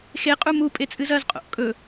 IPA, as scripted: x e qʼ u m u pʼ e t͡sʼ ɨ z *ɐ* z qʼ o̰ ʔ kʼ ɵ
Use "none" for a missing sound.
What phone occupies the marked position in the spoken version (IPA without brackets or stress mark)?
ɐ